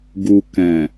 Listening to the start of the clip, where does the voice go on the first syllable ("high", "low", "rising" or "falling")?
low